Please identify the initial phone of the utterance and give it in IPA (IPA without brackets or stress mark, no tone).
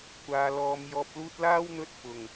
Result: kʷ